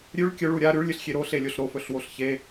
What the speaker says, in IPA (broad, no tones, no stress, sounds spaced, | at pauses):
ɾʲ ʉ ɭ kʲ ɵ ɭ u ɾʲ a ɾ ʉ ɭ lʲ ɨ ɬ xʲ e ɾ o ɬ e lʲ o ɬ ɾ o f ɵ ɬ w o ɬ ç e